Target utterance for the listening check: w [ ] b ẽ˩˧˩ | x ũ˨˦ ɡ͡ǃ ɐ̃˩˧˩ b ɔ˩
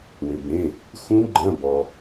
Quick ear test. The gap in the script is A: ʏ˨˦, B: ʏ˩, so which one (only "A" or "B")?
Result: B